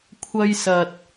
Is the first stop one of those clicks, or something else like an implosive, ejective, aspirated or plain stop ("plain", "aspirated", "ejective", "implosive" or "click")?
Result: aspirated